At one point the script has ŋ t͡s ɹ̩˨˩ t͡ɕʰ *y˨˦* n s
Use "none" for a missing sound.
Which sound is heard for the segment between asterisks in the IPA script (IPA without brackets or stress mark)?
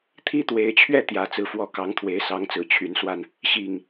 y˨˦